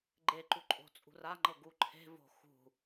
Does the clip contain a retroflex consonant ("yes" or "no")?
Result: no